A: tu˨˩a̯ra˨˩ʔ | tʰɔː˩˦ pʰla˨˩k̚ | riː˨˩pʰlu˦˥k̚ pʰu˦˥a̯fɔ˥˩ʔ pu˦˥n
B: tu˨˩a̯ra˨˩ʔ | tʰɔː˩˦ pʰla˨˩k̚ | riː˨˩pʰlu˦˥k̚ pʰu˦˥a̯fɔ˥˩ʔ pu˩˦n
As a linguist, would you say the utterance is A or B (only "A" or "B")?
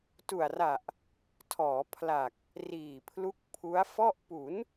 B